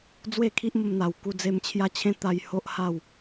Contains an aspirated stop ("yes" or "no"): yes